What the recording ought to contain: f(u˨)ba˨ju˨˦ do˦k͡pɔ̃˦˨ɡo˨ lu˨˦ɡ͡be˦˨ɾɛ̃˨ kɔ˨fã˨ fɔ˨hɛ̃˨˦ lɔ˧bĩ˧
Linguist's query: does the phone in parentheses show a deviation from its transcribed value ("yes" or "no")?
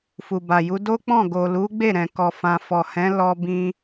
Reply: no